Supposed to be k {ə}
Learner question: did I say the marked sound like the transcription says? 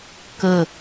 yes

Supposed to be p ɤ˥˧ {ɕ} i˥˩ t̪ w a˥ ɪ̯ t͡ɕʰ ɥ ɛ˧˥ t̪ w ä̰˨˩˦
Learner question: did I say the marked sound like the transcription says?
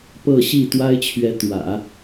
yes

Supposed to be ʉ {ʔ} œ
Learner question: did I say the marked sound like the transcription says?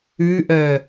yes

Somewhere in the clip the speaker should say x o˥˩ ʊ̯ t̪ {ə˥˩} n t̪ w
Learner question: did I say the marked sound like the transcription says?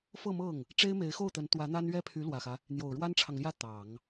no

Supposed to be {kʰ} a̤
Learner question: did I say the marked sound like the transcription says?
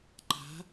no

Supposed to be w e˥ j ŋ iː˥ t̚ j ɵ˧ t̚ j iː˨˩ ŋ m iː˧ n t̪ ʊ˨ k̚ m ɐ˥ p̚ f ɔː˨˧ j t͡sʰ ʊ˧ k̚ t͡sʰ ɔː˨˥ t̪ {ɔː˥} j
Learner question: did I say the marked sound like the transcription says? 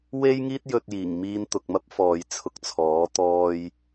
yes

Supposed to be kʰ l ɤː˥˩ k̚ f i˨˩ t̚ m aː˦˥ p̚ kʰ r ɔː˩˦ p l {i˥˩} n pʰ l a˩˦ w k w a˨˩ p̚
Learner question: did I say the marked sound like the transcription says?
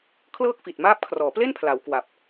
no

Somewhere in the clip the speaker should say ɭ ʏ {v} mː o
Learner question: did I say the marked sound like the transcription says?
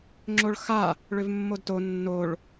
yes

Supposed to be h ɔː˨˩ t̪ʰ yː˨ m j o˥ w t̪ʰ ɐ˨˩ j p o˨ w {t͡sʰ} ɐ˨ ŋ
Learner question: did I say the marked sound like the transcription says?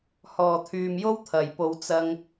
no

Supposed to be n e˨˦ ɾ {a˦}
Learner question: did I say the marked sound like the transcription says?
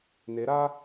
yes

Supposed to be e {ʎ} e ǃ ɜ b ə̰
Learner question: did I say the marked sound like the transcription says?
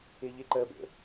yes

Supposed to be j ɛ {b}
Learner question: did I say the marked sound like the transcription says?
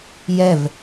no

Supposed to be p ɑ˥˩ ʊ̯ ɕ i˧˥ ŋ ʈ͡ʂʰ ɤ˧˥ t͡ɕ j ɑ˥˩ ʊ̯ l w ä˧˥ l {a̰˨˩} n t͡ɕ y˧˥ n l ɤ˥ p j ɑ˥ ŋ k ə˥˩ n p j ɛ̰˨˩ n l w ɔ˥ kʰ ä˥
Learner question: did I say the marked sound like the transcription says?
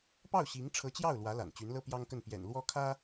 yes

